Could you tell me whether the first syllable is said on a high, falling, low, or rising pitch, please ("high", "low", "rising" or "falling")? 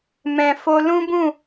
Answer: low